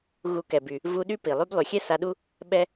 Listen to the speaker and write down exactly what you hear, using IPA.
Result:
ɣ u˧ k ɛ˨ b y˨ | v u˧ ɗ y˦ p i˨ lˠ y˦ b lˠ y˨ xʲ ɛ˦ s a˧ ɗ u˦ | ɓ ɛ˧

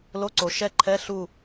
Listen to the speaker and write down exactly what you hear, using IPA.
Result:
l o˧˥˧ ǀ o˨ ʃ ɛ˦˨ ǃʰ ɛ˧˥˧ ɬ u˦˨

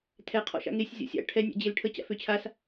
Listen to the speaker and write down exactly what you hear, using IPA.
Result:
tʰ ɛ qʰ ɔ̰ ʃ a̰ ŋ e sʲ zʲ ɔ̰ sʲ a̰ ʈʰ ɛ nʲ a̰ d͡ʑ e l ʈʰ ə t͡ɕ a̰ f ø t͡ɕʰ a s

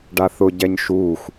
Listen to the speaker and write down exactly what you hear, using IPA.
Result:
ɖ a θ ʊ ɟ ɛ ɲ ʃ uː xʷ

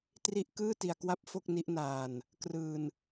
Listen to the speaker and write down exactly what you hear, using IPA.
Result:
t r i˦˥ ʔ k ɯː˥˩ t i˧ a̯ k w a˥˩ p̚ f o˥˩ k̚ n i˦˥ ʔ n aː˧ n | k r ɯː˧ n

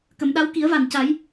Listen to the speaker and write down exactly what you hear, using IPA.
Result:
k ə˨˩˨ m ɗ a˧˥ w k i˨˩˦ ə̯ v a˨˩ n c a˨˩˦ j

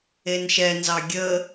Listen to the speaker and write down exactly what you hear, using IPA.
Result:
e n ʃ ɛ n z ɑ ɡʲ ə

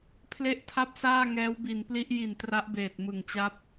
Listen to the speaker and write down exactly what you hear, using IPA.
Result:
pʰ l e˦˥ ʔ tʰ a˦˥ p̚ s aː˥˩ ŋ ɛː˦˥ w b i˨˩ n p l i˦˥ ʔ j i˨˩ n t r a˦˥ ʔ b eː˨˩ t̚ m ɯ˨˩ ŋ t͡ɕ a˥˩ p̚

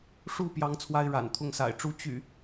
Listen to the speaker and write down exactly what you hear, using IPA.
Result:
ʂ u˥˨ p j ɑ˦ ŋ t͡sʰ w a˦ ɪ̯ ɻ a̰˨˩ n t̪ʰ ʊ˥˨ ŋ s a̰˨˩ ɪ̯ ʈ͡ʂ u˦ t͡ɕ y̰˨˩

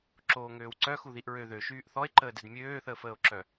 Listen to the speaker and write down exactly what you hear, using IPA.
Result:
ǁ oː ŋ øː w ǀ œ x u ð i ʔ ɹ ø ð ø ʃ yː ʔ θ ɔ e̯ ǃ əː d ɛ d mʲ øː θ əː f əː o̯ ǁ œ

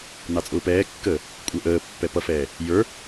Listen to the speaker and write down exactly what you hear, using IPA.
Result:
n ɑ t͡sʼ ʊː p ɛː kː əː | kʷʼ ə˞ ʔ əː pː ɛ p ʌ f ɛː | j ə˞

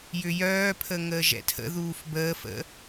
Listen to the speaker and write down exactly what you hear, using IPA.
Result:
j ʏ j œː pʰ ə ŋ əː ʒ ɛ̰ tʰ ə̰ ð uː f b əː f ə̰

